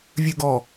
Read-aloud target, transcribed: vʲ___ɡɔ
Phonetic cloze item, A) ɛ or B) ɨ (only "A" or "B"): B